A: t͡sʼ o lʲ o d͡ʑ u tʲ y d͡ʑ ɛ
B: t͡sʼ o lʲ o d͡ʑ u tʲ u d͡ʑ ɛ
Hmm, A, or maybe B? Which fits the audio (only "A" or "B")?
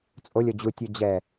B